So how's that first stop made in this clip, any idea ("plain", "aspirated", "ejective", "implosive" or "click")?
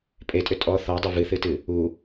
ejective